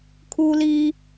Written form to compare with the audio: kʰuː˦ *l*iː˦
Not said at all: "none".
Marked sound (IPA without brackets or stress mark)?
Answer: l